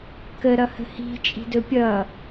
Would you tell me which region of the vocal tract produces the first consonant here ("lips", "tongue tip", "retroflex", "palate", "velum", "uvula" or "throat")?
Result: velum